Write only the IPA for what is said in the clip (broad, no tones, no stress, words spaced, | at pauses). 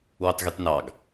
wøtˤɣytnɑɡ